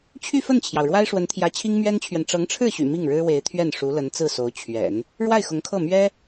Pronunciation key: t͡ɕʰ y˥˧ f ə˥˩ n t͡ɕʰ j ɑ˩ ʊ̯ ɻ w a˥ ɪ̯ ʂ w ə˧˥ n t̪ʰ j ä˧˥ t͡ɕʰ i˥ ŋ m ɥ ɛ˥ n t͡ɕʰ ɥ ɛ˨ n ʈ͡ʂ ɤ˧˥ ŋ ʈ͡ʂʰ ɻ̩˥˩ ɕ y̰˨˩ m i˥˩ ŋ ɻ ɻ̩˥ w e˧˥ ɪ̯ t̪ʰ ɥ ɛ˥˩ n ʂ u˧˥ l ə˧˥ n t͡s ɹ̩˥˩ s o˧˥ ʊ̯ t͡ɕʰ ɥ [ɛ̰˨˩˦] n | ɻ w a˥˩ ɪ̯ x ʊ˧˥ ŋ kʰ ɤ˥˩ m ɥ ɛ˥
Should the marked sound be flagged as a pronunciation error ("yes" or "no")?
no